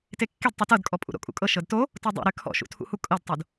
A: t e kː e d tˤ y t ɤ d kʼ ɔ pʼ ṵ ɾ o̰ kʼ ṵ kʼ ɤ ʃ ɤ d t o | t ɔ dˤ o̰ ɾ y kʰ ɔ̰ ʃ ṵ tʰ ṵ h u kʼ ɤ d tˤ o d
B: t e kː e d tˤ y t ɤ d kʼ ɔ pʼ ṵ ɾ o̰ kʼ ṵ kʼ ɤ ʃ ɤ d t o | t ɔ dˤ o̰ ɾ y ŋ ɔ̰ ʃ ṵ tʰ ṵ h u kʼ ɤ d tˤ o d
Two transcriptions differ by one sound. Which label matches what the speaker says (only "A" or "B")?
A